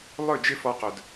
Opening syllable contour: falling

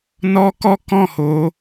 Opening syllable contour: high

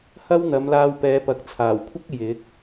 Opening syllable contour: high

